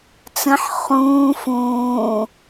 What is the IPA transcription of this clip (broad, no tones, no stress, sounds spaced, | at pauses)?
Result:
t͡s ə̃ ħ χ ũː f ũː